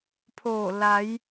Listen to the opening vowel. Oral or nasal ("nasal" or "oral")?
oral